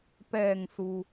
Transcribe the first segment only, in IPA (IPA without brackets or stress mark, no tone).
p